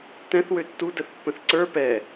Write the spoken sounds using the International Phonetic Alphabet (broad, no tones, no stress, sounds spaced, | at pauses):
t ɛ̃ θ w ø tː u d ə θ pː ə̃ θ ǀ ə˞ p ɛ